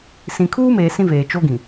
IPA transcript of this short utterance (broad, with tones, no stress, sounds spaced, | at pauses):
s ĩ˨ kʰ uː˦ m eː˨ s ĩ˦ v eː˨ t͡ʃ o˦ ɡ ĩ˨